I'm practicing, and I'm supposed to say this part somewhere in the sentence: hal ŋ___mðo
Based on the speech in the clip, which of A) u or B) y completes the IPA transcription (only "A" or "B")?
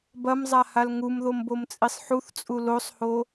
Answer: A